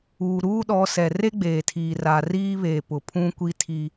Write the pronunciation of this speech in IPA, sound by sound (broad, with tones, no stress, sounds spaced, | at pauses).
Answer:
uː˨ ɾ uː˦ ɗ ɔ˨˦ s ɛ˨ r e˦ ɡ͡b eː˨ tʰ iː˨ r a˨ r iː˦ β e˨ p ʊ˨ pʰ ũ˦ kʷ i˦ tʰ i˦